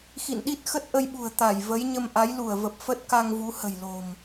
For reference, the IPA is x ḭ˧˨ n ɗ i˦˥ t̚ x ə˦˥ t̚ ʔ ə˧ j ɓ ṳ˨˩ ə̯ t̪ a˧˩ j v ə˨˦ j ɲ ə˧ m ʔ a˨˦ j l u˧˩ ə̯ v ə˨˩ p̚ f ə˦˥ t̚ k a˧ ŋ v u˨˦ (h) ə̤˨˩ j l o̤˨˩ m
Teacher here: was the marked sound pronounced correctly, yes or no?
yes